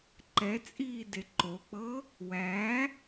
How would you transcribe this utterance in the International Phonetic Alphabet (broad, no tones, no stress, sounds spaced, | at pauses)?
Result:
ǃ ɛ t͡sʼ iː d e ǃ o k͡p ɤ | w æ